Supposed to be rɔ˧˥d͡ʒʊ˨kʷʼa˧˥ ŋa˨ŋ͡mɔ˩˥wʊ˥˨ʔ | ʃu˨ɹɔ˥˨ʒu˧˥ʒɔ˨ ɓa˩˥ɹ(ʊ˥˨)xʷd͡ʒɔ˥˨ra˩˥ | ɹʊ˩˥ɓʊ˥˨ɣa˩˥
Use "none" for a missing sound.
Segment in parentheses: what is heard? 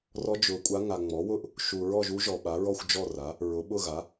ɔ˥˨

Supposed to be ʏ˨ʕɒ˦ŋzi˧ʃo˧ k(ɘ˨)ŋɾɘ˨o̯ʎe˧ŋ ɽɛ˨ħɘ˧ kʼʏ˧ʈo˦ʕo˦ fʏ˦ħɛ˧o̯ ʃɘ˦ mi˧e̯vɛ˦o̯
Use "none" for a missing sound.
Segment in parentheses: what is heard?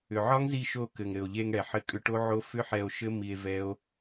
ɘ˨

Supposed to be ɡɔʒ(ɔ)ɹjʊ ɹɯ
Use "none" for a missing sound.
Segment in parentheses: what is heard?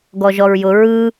ɔ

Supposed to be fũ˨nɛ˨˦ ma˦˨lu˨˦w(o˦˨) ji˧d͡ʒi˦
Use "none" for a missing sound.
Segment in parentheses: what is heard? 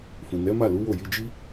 o˦˨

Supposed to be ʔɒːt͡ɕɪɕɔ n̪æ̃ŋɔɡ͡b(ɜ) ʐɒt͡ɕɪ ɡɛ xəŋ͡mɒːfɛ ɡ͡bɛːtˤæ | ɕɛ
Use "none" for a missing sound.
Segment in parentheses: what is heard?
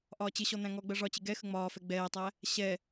ɜ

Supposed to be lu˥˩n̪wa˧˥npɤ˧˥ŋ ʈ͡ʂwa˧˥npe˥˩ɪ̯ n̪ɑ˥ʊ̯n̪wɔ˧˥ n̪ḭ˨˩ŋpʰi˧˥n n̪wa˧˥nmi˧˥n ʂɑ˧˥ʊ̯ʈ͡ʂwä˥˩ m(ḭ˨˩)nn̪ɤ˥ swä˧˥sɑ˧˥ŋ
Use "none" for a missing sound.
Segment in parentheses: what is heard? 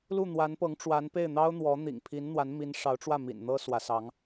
ḭ˨˩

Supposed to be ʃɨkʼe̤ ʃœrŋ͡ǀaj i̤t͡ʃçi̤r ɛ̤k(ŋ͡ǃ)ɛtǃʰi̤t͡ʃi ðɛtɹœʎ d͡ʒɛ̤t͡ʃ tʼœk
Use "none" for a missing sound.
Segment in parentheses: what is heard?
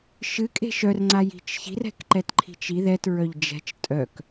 ǃ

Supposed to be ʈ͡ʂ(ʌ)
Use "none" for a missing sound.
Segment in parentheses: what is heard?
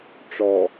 ɔ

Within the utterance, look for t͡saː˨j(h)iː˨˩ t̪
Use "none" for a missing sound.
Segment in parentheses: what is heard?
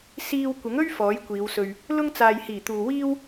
h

